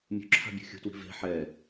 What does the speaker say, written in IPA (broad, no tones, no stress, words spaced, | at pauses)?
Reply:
mʲṳǁʰa̤bʲṳ xʲṳtwi̤ ve̤ ħɛ